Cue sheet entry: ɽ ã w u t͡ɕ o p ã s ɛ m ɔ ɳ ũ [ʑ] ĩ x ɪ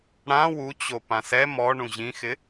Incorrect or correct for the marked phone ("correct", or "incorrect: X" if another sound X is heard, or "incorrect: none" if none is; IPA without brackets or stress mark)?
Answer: correct